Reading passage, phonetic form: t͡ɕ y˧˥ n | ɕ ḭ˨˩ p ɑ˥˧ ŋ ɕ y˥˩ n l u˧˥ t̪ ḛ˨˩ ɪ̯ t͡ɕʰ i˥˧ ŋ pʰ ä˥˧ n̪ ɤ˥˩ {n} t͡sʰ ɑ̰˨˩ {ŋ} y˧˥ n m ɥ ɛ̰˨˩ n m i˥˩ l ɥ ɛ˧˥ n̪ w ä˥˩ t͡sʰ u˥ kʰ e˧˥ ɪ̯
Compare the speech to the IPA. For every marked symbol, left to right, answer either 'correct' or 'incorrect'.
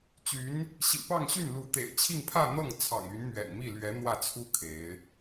incorrect, correct

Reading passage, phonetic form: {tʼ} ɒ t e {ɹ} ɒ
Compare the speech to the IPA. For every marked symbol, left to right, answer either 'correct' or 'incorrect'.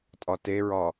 correct, correct

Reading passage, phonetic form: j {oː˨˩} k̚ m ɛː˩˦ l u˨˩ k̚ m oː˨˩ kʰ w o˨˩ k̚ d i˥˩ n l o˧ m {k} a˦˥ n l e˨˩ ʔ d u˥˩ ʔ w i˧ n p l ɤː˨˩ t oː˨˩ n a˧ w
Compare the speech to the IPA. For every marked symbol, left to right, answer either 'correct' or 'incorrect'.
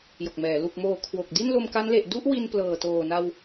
incorrect, correct

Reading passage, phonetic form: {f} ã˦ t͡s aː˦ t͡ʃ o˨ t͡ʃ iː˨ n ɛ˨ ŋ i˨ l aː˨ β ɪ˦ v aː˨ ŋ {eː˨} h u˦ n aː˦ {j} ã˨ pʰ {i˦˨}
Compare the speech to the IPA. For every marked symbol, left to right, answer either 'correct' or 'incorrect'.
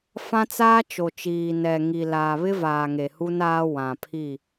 correct, incorrect, incorrect, correct

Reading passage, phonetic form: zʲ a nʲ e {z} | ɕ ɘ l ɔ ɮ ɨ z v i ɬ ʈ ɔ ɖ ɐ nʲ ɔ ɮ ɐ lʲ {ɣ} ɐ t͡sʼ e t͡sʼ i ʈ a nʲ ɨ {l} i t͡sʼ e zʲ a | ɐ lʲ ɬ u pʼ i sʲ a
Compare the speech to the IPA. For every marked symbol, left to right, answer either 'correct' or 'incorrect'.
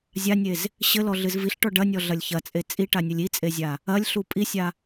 correct, incorrect, incorrect

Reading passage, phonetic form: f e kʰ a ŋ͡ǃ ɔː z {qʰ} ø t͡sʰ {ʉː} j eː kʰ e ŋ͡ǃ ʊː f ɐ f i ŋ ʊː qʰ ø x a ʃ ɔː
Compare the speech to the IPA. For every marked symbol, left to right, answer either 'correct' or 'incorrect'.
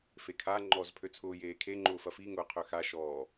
incorrect, incorrect

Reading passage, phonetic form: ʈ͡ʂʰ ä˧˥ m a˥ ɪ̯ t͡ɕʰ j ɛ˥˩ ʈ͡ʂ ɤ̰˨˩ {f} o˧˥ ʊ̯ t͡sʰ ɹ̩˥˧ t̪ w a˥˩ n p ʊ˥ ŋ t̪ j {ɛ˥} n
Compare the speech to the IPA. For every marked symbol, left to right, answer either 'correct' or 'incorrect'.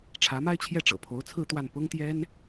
incorrect, correct

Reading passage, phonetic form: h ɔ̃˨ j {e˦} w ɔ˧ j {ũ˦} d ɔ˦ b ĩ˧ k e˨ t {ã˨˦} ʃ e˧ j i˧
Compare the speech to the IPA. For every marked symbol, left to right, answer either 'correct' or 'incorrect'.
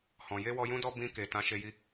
incorrect, correct, correct

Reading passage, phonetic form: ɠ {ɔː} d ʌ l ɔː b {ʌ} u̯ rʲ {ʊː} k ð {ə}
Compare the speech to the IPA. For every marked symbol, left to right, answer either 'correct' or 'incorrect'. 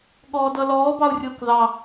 correct, incorrect, correct, incorrect

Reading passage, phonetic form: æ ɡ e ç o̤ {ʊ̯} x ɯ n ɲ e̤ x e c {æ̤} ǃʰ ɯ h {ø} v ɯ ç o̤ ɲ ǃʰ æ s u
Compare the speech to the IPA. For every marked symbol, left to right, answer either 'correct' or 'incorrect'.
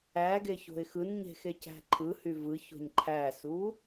incorrect, correct, incorrect

